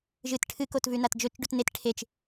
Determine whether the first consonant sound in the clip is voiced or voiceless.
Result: voiced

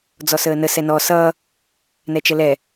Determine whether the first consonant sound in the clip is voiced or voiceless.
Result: voiced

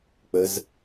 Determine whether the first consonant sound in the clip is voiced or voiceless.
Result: voiceless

